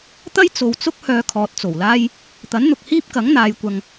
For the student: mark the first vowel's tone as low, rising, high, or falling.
high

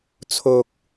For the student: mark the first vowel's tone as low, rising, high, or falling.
low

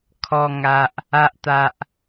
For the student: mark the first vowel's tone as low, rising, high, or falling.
low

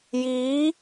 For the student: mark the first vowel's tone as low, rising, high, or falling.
rising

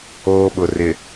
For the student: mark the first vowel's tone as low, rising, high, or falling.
high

